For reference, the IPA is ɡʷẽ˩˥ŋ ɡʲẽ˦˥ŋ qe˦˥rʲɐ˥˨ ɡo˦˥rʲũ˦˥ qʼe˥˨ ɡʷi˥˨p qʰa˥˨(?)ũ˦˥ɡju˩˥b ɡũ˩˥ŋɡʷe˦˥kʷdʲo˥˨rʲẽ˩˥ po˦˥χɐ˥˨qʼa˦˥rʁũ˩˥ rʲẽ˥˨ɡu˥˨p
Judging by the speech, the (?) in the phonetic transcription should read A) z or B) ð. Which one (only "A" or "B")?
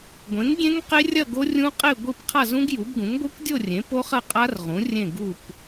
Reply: A